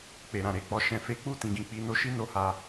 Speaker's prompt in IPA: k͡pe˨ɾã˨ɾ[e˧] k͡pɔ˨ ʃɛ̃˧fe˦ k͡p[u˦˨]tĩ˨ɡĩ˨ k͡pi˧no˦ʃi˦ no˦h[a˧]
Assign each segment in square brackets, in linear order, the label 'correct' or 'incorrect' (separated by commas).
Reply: incorrect, correct, correct